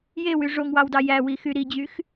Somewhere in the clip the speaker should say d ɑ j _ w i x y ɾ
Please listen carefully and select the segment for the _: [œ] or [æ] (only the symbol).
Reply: æ